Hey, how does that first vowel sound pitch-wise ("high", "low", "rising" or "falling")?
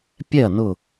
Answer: falling